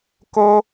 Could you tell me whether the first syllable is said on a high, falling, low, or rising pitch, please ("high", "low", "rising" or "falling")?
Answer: high